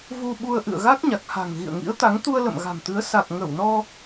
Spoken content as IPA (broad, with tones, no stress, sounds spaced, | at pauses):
v u˧ ɓ u˧ ə̯ ʔ ɨ̰˧˨ ə̯ ɣ a˦˥ k̚ ɲ a˨˩ k̚ h a̤˨˩ ŋ ɣ ḭ˧˨ ə̯ ŋ ḭ˧˥ ə̯ t̪ a˨˦ ŋ t̪ u˧ ə̯ l ə̰˧˨ m ɣ a̤˨˩ m t̪ ɨ˨˦ ə̯ s a˨˩ k̚ ŋ ə˧˩ w n ɔ˧